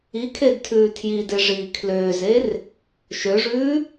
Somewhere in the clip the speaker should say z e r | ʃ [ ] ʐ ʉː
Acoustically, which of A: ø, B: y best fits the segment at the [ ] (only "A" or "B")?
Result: A